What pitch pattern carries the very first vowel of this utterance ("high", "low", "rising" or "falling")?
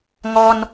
high